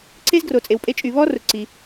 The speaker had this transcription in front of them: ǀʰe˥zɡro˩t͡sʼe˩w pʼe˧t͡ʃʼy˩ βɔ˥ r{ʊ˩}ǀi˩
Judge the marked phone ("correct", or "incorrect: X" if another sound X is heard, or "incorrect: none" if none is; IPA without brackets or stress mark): correct